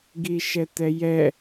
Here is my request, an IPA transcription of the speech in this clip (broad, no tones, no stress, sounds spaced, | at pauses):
ɡ i ʃ ɛ t ɛ j ɛ